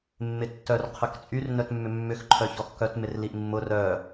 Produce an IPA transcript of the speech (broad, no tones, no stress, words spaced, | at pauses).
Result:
mːɪtːœr qʰœkt͡sʼyr nœtmːʏmːʏx ǃʰœçɔxkœt mɪrliʔmːʊ rœ